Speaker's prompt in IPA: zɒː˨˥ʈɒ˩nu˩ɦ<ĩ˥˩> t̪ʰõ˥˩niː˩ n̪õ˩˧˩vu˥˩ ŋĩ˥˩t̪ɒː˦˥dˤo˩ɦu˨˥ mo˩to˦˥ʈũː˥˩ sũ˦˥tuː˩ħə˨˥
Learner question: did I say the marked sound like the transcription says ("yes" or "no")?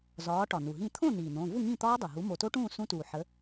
yes